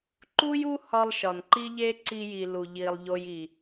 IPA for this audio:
ǃ u˦ j u˦ h ɒ˧ lˠ ʃ ɒ˨ n ǃ i˦ ʎ e˦ ǀ i˧ j i˨ l u˨ ʎ i˨ lˠ ʎ o˧ j i˨

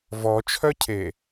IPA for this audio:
v ɔ t͡ʃʰ œ cʰ e

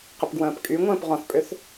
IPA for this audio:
q ə p ɡ w ə̃ː p kʼ y ŋʷ ə̃ː p ʁ ɔ̃ θ pʼ ʏ θ

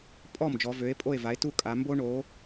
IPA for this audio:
pʼ ɔ˥˩ m d͡ʒ ɔ˩˧ v ø˩˥ e̯ pʼ o˥˩ e̯ v a˩˥ e̯ t u˥˩ kʼ a˩˧ m b o˥ ɳ o˩˥

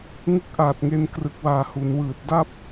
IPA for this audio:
ŋ ɯ˦˥ k̚ ʔ aː˨˩ t̚ ŋ e˧ n k r ɯ˨˩ k̚ w aː˨˩ h u˩˦ n w ɯː˨˩ t̚ d a˥˩ p̚

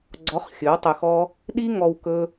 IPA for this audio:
ɡ͡ǀ ɔ˨˦ χ xʲ ɵ˨˦ w tˤ ʊ˧ x ɔ˦ | ɗ i˦ ŋ ɔ˧ w k ɵ˦

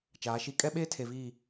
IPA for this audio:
t͡ʃ aː˨˦ ʃ i˦ kʼ ɛ˦ ɓ eː˦ tʰ e˨ v iː˦˨

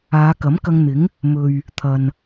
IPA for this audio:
aː˨˧ k ɐ˨˥ m k ɐ˧ ŋ n̪ ɪ˨˥ ŋ | m ɵ˨ ɥ | t̪ʰ ɐ˨ n

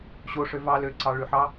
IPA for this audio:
ɕ o ʂ ø v ɑ l ø ǀ ɑ ɭ y ħ ɑ

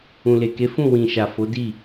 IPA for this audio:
ũ˨ l e˨ k e˨˦ f ũ˦˨ w ĩ˨ ʃ a˨ f o˨˦ d i˦˨

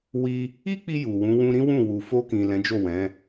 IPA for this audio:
w i˦ | i˦ k͡p i˧ j u˨ w ũ˨˦ w ũ˦ ɾ ĩ˦ w ũ˦˨ w u˨ f o˧ k ĩ˨ l ɛ̃˨˦ d͡ʒ o˦˨ w ɛ̃˨˦

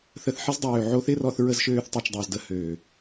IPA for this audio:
θ ə˧ θ ħ ɪ˦ z dˤ øː˨ ʕ o˧ θ ɪ˦ r ɔ˧ θ ɹ ə˦ z ʃ øː˦ θ tˤ i˧ t͡ʃ dˤ ʏː˧ z d ə˧ h øː˨

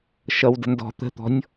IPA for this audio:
ʃ ʌ w d ə̤ n d ɔ̤ t̪ ə̤ t̪ ɔ̤ nʲ

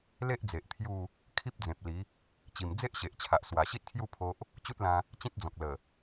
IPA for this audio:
l e˦ ʔ d͡z e˨ ʔ t̪ʰ j u˥˧ | kʰ i˦ p̚ d͡z ẽ˨ p̚ l i˨˦ | t͡ɕ i˨˩ m d͡z e˦ ʔ ɕ e˨ ʔ t͡ɕʰ a˨ ʔ s w a˨˩ ɕ i˦ t̚ kʰ j u˥˧ pʰ o˦ ʔ | t͡ɕ u˦ t̚ l ã˧ | t͡ɕ ĩ˦ t̚ d͡z ɔ̃˨ k̚ l ə˨˩

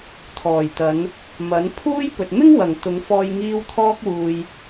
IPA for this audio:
t̪ʰ ɔː˨˩ j t̪ ɐ˨˧ n | m ɐ˨˥ n pʰ uː˥ j p ɵ˨ t̚ m ɪ˥ ŋ w ɐ˨˩ ŋ t̪ ʊ˨˧ ŋ f ɔː˧ j ŋ iː˧ w t̪ʰ ɔː˧ k̚ w uː˨ j

